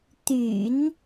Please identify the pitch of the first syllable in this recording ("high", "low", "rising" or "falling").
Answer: low